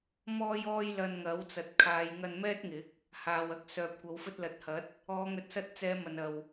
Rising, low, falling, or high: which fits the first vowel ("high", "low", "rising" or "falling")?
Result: high